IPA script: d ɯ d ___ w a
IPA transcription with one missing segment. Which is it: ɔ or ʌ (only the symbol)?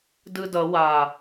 ʌ